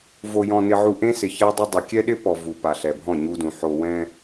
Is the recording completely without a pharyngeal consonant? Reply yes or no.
no